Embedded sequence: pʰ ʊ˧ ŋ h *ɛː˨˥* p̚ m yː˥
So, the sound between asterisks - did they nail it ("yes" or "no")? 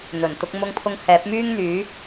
yes